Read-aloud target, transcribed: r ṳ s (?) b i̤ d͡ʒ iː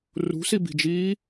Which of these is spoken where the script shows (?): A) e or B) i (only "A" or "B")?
B